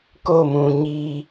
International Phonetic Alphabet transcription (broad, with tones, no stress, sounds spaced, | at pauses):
k o˦˨ m ũ˨ ɲ iː˦